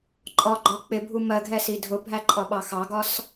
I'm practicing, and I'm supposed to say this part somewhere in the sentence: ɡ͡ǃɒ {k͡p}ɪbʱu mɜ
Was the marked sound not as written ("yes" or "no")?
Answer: no